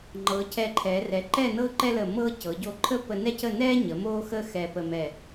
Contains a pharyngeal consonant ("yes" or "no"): no